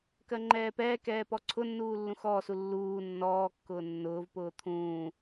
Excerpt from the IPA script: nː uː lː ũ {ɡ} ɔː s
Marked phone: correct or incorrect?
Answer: incorrect